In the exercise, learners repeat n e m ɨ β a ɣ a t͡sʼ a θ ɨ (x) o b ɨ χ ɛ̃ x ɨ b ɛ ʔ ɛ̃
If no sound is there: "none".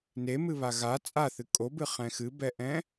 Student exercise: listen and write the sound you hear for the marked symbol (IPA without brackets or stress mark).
kʼ